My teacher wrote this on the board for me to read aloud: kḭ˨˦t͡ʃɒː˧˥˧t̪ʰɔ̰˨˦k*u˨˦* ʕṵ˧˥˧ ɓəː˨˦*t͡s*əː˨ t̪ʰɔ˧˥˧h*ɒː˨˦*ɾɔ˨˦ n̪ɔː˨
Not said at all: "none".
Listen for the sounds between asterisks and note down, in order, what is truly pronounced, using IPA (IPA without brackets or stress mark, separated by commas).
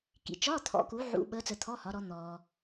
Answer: u˨˦, t͡s, ɒ˨˦